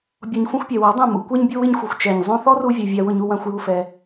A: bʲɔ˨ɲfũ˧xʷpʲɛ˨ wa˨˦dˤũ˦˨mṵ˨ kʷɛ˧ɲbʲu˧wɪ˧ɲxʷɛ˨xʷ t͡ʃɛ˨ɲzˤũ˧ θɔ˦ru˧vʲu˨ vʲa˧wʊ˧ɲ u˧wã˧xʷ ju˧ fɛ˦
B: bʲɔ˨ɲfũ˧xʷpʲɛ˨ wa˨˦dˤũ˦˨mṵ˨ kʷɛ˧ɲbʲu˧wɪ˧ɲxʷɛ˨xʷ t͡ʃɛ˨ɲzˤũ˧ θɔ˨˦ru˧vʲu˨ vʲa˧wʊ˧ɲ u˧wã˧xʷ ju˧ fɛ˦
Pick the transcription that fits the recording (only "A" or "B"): A